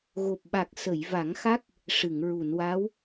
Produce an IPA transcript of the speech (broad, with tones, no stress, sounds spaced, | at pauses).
ɣ o˨˩ p̚ ɓ a˨˩ k̚ s ə˨˩˨ j v a˨˩˦ ŋ x a˦˥ k̚ | ʂ ɨ˨˩˨ ŋ ɹ u˨˩˨ n w a˧˥ w